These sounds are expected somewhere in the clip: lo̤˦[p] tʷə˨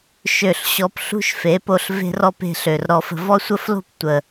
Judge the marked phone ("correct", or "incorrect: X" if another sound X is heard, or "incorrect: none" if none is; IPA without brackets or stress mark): correct